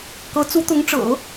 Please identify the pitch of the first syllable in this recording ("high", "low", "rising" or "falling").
rising